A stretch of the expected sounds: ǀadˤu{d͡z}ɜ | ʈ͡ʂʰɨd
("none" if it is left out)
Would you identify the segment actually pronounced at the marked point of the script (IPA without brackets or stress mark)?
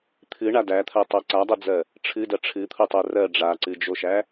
d͡z